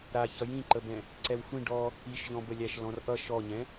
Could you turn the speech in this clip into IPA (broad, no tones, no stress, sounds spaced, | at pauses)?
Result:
ɾ a ç ʌ j ĩ ǃ ə b ɛ̃ | ǀ ɛ w xʷ ĩ ɖ ɔ | i ʃ ʎ ɔ̃ b ə lʲ æ ʃ l ɔ̃ r ʔ ʌ ʃ ɔ ɲ ɛ̃